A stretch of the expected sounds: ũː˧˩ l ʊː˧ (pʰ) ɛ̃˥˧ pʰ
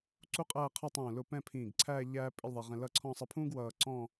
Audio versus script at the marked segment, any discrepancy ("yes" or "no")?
yes